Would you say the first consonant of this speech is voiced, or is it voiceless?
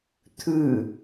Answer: voiceless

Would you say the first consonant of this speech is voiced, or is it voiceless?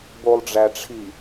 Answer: voiced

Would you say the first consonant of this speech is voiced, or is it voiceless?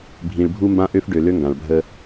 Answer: voiced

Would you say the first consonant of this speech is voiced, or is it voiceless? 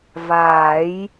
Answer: voiced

